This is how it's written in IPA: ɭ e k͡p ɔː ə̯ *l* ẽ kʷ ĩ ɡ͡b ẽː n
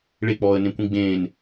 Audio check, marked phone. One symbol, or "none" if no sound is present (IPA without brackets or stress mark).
n